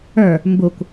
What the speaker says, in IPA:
ə˞ | m b u kʷ

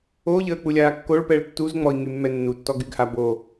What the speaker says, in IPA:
o ʎ əː k͡p u lʲ aː kː o ɭ p ɛ ɭ tː u z ŋ͡m ɔ i̯ ŋ y mː ɛ nː u tː ɔ ɡ y ɡ h a b o

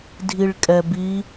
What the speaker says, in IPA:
dʱ i ɭ kʼ ɛ b i

